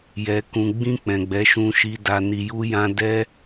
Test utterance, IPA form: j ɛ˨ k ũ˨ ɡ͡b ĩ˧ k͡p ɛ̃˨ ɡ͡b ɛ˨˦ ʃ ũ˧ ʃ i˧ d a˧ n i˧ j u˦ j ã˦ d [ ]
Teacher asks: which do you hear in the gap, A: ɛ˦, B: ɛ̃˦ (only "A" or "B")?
A